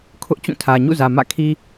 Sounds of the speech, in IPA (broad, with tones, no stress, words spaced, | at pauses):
kʰʊ˦ʔt͡ɕũ˦˨tʰä˨ ɲṵ˦˨zä˨ mä̰˦˨kʰi˦